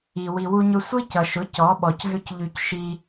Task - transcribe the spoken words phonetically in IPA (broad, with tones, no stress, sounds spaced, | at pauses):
i˨ w i˨ w u˧ ɲ ʊ˧ sʷ i˦ c ʌ˨ ʃ ʊ˨˦ c ɔ˨˦ ɓ ɔ˨ c ɦ ʏ˦ c ʎ y˧ c ʃ i˧